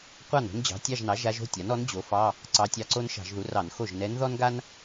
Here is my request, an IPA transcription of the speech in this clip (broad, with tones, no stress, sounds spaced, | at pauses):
qʷ ɑ˥˩ n o̤˥ n d͡ʑ ɑ̤˩˥ tʲ ɑ˧˥˧ ʒ n ɑ˩˥ ʒ a˧˥ ʒ o̤˧˥˧ tʲ a˩˥ n ɔ˩˥ n d͡ʑ o˩˥ f ɑ˧˥˧ | ǀ ɑ˧˥ tʲ ɑ˧˥ ǀ o˥ n ʃ ɑ̤˧˩˧ ʒ ð u˩˥ r ɑ˧˩˧ n x o˥˩ ʒ n ɛ˧˥ n ð ɔ˥ n ɡ a˥ n